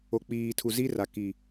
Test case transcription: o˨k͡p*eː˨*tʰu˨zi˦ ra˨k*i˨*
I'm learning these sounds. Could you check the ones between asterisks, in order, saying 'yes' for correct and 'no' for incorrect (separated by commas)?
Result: no, yes